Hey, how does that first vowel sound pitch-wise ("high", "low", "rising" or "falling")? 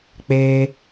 high